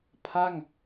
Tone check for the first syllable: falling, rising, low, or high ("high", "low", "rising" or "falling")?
falling